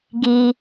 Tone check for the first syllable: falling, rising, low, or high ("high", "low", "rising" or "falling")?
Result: low